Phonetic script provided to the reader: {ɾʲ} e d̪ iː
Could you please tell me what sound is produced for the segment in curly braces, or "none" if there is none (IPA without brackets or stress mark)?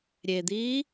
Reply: ɾʲ